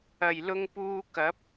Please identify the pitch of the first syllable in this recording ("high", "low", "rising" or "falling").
low